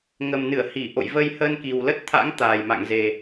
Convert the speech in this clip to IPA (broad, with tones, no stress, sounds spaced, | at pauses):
ŋ ə˨˩ m n ɨ˧˩ ə̯ h i˧˩ ʔ o̰˧˨ j v ə˧ j h əː˧ n k i˨˩ w l ə˦˥ t̚ t̪ʰ a̰˧˥ ŋ t̪ aː˨˩ j m a̰˧˨ ŋ z e˨˩